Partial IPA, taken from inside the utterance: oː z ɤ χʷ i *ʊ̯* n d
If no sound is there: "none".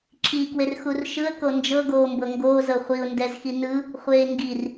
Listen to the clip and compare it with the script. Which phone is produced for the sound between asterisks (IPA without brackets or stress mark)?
ʊ̯